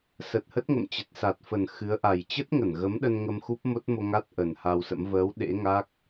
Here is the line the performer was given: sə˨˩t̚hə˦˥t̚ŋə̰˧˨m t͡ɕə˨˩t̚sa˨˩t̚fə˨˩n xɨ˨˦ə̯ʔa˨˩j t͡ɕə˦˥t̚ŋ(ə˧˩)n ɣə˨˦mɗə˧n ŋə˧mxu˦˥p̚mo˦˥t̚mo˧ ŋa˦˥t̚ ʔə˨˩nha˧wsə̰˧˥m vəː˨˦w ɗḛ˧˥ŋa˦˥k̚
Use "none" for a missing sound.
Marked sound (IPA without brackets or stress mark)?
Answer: ə˧˩